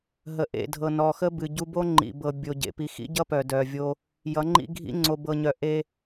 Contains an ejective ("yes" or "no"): no